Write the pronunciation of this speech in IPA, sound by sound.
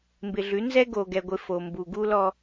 m b ɪ˨ ɮ ʉ˨˦ n z ɛ˦ ɡ o˨ ɡ ɛ˨ ɡʷ ɪ˨ f o˨ m b u˨ ɡ u˦ l ɔ˦

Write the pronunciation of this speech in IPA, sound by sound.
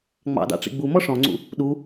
ŋ͡m ɑ̰ d ɑ̰ ʈ͡ʂ ḭ ɡ͡b u m ɔ ʂ ɔ̃ ŋ͡ǀ ṵ | ɗ u

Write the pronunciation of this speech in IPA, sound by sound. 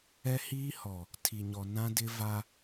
ɛ˦ h iː˦ h ɔ˨ | tʰ i˨ ɲ ɔ˨ n ã˦ d ɪ˦ v a˦

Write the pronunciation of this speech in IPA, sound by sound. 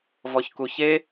v ɔ ç k u ç e

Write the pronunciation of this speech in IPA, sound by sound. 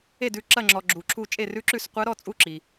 e˦˨ d ʉ˦˨ ǁ ɐ˦˨ ŋ͡ǁ ɔ˨ ɡ͡ǁ u˨ ǁʰ u˦˨ t͡ʃʼ e˦˨ r ʉ˧˥ ǁ ʉ˦˨ s qʷ ɐ˧˥ ɾ ɔ˦˨ t͡sʼ u˦˨ ǁ i˨

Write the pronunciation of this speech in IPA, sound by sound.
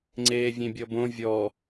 ŋ͡ǀ eː vʲ ẽ bʲ ɔ b õ vʲ ɔ

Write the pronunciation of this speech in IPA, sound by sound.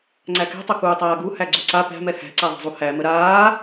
ŋ͡ǀ æ k ɛ̤ tˤ ʊ k uː tˤ aː ɡ u h æ ɡ͡ǀ u ǀ a p æ̤ m ɛ h æ̤ ǀ a ðˤ ɛ̤ zˤ u h æ m ə ɾ aː

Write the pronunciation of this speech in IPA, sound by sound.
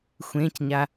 xʷ ẽ c ɲ a

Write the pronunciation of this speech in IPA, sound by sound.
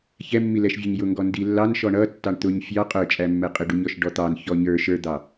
ç ɛ mː i l ɛ ʃ vʲ ʌ ɲ j ʊ ŋ ɡ ɔ n d i lː ɑ n ʃ ɔ ɳ ʌ tː ɑ ɳ t̪ ʊ ɲ fʲ ɑ qʼ ə˞ t͡ʃʼ æ mː ɛ qʼ ɪ ɖ u ɲ ɔ ʃ ɖ ɔ t̪ ɑ n ç ɔ ɲ ə˞ ʃ ə˞ d̪ ɑ

